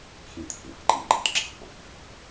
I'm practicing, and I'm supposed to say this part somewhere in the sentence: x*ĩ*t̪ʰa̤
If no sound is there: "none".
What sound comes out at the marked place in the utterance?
ĩ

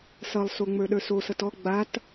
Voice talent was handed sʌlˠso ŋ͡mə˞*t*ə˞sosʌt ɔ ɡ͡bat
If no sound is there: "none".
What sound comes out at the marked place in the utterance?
ɗ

